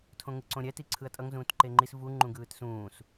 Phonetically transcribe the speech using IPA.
tʰõŋɯǀõɾʲɛ tiǀʰɯɐ̯tʼʌŋ zũːtǃeŋ͡ǃis vu ŋ͡ǃũɡɯːtsũːs

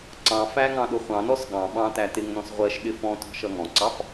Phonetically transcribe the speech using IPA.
ǀɑ̃fæ ŋɑ̃ɗʊχʷɑ̃nɔs ɠɑ̃ ɓɑ̃tæ tɪŋnɔ̃s ʁʷɜʃ ɗɪfɔ̃tɔ̤ ʃʌŋɔ̃ǀɑf

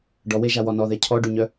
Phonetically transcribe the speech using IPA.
ɖɔweʒawɔ nɔðɛ cʰɔɖyɲœ

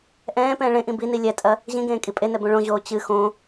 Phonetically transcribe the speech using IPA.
ʔɛ̃ː pɛ̃ːɭẽʔĩ bini lʲɛtʼɐ | ʑĩɡẽː kʼipʼenɛ bõɭõʑoː t͡ɕɨ xõ

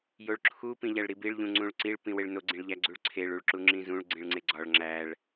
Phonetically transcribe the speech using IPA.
joɭǁʰu pĩʎæɭɾibiɭ ʎũŋ͡ǀũɭǀiɭ pĩweɭno ɡ͡ǀĩɭʎæɡ͡ǀuɭǀʰeɭ uɭǁuŋ͡ǁĩzũɭ ɡ͡ǀĩɭŋ͡ǀeɡ͡ǀɒɭ ŋ͡ǁæɭ

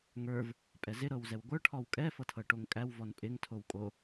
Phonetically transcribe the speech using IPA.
ŋə˞v | pʼɛzɪ ɾɤwzɛwɡʷə˞ ʈʰɔwkʼɛ fɤtʰɤʈoŋkʼæw vɔnpʼɪŋ tʰowkʼo

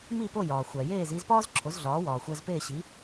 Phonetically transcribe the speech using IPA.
mi˥˩po˥˩ jɒː˩ xʷæ˩jeː˥˩z iː˧zpɒː˥zǁʰo˩˥zɮɒː˩˥ wɒː˩xʷæ˧zpeː˥˩ɕi˩˥

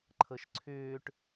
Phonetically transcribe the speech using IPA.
ǃʰɤʃǀʰʏːʈ

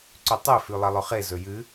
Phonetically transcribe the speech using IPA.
ǀʉtˤe fʉlˠɐlˠɵχe zɵjɨ

